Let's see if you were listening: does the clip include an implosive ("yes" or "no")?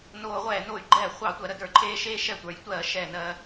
no